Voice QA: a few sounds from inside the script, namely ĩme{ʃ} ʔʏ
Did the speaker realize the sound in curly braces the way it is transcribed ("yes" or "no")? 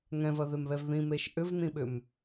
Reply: yes